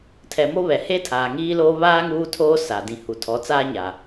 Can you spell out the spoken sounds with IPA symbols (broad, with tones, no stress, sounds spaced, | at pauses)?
tʰ ɛ˨ m o˦ β ɛ˨ h e˦ tʰ aː˨ ŋ iː˦ l oː˦ β aː˦ ŋ uː˦ tʰ oː˦ s a˨ d ĩ˨ h u˨ tʰ ɔ˨˦ t͡s aː˦ ɲ a˨